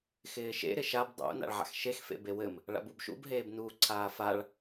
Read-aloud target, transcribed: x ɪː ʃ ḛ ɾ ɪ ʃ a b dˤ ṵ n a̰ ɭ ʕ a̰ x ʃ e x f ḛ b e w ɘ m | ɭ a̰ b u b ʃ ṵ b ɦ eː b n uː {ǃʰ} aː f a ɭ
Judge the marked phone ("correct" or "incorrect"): incorrect